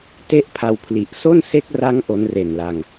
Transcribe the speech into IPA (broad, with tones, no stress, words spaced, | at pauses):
te˥˩ʔpʰa˧wpʰli˨˩ʔ so˥˩nse˦˥k̚ra˦˥ŋ ʔo˦˥nre˨˩nla˧ŋ